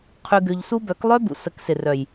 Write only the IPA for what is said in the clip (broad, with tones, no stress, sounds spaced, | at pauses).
qʰ y˧ ɡ ʏ˧ ʎ s u˦ b œ˨˦ k lˠ œ˦ b ṵ˨ s ə˨˦ k s ɪ˨ r œ˨ j